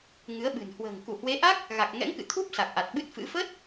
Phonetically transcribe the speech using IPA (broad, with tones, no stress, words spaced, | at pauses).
ŋɨ˨˦ə̯ɓɨ̤˨˩n hwə̤ː˨˩ŋ ku˧˩hwe˨˦ʔa˦˥k̚ | ɣa˨˩k̚ŋɛ̰˧˥ŋkɨ̰˧˨t̪ʰu˦˥p̚ sa˨˩k̚ʔa˨˩t̚ɓɨ˦˥t̚fɨ̰˧˥ fə˦˥t̚